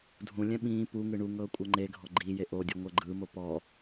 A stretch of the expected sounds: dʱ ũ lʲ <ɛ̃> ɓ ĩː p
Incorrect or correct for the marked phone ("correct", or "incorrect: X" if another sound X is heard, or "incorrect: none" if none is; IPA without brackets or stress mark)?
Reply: correct